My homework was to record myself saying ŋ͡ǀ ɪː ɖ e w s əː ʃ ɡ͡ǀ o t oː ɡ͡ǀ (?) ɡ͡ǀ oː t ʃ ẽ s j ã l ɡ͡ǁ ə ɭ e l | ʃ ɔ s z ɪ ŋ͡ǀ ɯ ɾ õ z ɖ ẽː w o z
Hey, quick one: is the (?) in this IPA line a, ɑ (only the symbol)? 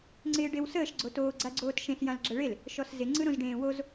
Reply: a